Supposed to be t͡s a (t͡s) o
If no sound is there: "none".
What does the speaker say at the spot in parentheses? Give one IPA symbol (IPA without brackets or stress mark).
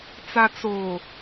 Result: t͡s